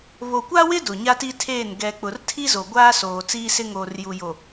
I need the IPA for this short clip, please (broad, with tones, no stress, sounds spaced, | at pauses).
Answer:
β o˨ kʷ a˦ w ɪ˦ d ʊ˨ ɲ a˦ t i˦ tʰ eː˦˨ n ɡ ɛ˨ k͡p ʊ˨ r tʰ i˦ z o˨ ɡʷ aː˦ s oː˨ t͡s iː˦ s ɪ˦ ŋ oː˨ r j u˨ j o˨